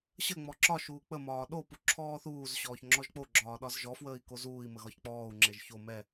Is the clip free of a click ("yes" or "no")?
no